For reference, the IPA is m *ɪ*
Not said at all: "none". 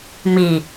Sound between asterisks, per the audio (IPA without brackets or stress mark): i